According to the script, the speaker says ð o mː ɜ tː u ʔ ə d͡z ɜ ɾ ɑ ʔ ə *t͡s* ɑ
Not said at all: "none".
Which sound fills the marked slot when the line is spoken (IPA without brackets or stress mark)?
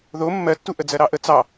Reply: t͡s